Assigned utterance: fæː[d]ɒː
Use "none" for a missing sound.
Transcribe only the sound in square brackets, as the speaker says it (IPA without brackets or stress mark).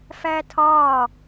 tʰ